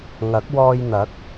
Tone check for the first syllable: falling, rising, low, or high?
rising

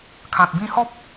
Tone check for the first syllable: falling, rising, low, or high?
low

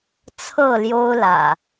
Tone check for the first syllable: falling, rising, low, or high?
falling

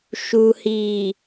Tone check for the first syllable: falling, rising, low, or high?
low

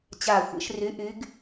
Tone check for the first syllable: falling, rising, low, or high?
falling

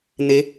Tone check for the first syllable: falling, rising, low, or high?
rising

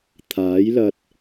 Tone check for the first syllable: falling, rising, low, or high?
rising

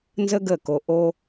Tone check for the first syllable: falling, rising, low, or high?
high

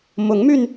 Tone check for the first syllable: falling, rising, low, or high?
rising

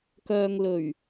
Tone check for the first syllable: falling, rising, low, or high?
low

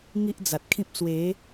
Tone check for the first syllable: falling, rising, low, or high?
high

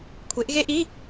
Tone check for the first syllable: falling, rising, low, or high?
rising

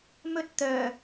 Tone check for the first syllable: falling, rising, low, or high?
high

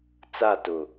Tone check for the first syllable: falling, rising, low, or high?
falling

